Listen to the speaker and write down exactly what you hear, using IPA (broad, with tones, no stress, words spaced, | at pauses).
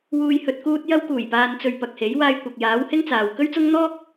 wuː˨j hɵ˨t̚kuː˧t̚ jɐ˧wkuː˨˩jpaː˨nt͡sɵ˨ɥ pɐ˨k̚he˨˥j waː˧jkʷɐ˨k̚jaː˨˥whɪ˥ŋ t͡saː˨w kɵ˥ɥt͡sʊ˥ŋ n̪ɔː˥k̚